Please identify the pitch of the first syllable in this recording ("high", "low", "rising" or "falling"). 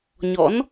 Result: rising